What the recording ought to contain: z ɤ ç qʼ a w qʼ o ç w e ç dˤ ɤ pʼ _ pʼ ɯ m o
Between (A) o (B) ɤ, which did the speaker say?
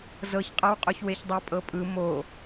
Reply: B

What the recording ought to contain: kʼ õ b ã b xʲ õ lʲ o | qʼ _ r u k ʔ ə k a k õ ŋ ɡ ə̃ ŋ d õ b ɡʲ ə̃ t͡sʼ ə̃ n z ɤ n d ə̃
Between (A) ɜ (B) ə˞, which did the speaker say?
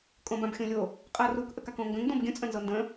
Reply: A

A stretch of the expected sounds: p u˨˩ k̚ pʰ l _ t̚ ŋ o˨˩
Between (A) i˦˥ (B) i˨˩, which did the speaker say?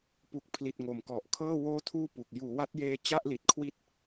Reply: B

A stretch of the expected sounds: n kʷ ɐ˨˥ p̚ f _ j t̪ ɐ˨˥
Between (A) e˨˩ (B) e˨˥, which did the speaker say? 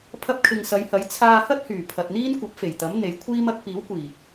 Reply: A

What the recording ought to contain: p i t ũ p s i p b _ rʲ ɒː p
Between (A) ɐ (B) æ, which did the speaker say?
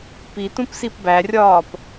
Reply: B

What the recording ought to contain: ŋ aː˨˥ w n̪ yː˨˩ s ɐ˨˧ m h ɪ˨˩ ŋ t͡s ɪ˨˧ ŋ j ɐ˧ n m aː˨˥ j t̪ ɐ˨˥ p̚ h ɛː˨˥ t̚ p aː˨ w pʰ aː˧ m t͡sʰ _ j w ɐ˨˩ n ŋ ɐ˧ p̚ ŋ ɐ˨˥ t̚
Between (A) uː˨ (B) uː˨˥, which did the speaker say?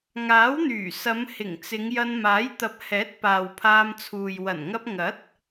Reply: A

